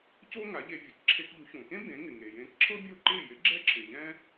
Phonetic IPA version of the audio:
co˥ŋa˩˥ʎe˧vʲə˩˥k ǁʰe˧kʎu˩˥çõ˩kẽ˥ bẽ˩˥ŋɪ˩ŋe˩ jẽː˧kǁʰɤ˥ bʲo˥˩ǃɪː˥˩ jɪ˩˥ ɡ͡ǁɛ˥ǁʰɪː˩ʎɛ̃˥

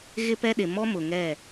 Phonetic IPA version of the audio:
ɣɪ˦pɛ˦ɗɪ˨ mɔ˦mʊ˨ŋɛ˦˨

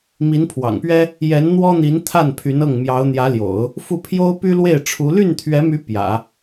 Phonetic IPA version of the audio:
mi˧˥npʰwɑ̰˨˩ŋpɥɛ˥ | jɛ˧˥nn̪wɔ˥n̪i˧˥n t̪ʰa˥˩npʰy˧˥n ɤ˥˩ŋ mjɑ˧˥ʊ̯n̪jä˧˥ljo̰˨˩˦ʊ̯ | fu˥˩ pʰjo˥ʊ̯py˥lwe˥˩ɪ̯ʈ͡ʂʰu˧˥ ly˥˩nt̪ʰɥɛ˧˥my˧˥ pjä̰˨˩˦

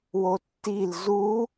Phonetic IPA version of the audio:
wotːil zu

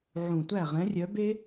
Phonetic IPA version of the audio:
ʕũ˨˩tʷæ˥˩ ʁɛ̃˨˥rʲœ˨˥be˥

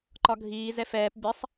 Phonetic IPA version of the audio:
ǃɒɡʱiː zɛfɛːp bʲɛsˤ

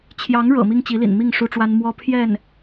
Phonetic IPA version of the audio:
t͡ɕʰjɑ˧˥ŋɻɤ̰˨˩ mi˥ŋt͡ɕi˧˥lḭ˨˩nmi˥˩ŋ ʂu˥ʈ͡ʂwa˥n mwɔ˥pʰjɛ˥˩n

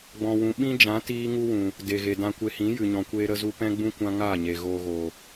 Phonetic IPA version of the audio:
ɡ͡bɔ̃˨wũ˨ ɓĩ˦d͡ʒã˨˦ tiː˦ ŋu˦wũ˨ | de˨ɣe˨ dã˧kʷe˧hĩ˨˦ jɨ˨ɲɔ̃˨kʷeː˧ ɾə˧zu˧ pɛ̃˦ɡ͡bũ˦ kʷã˦ŋaː˦˨ɲe˨ ɣoː˧ɣoː˨

